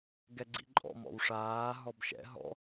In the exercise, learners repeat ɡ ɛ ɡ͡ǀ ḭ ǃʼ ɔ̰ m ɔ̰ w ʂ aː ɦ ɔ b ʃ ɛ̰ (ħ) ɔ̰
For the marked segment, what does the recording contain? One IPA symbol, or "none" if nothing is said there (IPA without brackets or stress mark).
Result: ɦ